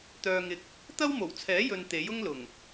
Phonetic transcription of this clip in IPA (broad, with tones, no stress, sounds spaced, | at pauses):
t̪ œː˨ ŋ ɪ˨ k̚ | t̪ ɐ˥ w m o˨˩ w t͡sʰ ɛː˨˥ j ɵ˨ n t̪ e˨˥ j ʊ˥ ŋ l ʊ˨˩ ŋ